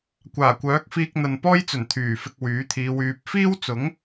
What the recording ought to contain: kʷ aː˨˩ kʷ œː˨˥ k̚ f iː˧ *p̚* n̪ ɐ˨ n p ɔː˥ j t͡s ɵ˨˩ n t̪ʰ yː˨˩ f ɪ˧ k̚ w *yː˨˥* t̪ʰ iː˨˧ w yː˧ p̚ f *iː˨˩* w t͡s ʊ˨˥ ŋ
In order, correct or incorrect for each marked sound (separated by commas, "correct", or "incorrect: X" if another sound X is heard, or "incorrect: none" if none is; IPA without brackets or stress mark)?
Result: incorrect: k̚, correct, incorrect: iː˥